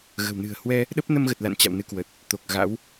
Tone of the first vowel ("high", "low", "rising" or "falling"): low